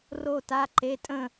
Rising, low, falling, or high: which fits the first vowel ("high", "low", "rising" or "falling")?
falling